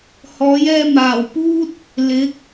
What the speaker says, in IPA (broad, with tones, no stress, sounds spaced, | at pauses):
h ɔː˨˥ j ɛː˧ m aː˨˩ w p uː˥ t̚ | l ɪ˨˥ k̚